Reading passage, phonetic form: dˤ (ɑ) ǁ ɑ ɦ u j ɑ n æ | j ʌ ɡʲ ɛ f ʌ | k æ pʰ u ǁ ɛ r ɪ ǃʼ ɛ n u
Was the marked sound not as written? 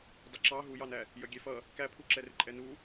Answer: yes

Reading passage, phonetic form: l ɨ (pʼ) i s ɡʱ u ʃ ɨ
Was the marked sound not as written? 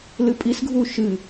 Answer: no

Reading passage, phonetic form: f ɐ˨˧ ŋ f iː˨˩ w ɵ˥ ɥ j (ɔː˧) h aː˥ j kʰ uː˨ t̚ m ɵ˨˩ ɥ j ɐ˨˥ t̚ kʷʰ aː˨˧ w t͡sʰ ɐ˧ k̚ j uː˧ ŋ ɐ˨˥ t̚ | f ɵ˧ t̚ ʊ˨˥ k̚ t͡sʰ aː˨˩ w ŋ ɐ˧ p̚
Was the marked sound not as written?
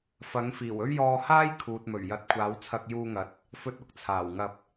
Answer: no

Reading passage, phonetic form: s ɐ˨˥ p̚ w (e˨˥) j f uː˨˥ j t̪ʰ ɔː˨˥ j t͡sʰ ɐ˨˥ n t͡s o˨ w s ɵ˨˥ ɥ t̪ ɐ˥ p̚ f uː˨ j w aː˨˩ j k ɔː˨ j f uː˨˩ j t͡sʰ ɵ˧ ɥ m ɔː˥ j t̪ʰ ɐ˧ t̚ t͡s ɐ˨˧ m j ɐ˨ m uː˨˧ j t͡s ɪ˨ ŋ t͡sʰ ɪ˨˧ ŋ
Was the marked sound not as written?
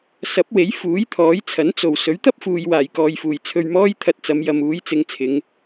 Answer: no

